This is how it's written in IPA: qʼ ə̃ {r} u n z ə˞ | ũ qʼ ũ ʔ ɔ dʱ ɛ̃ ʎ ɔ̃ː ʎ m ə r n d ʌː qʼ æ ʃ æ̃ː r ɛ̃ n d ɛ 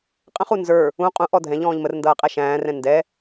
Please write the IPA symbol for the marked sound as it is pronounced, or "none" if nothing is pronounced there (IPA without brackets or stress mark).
χ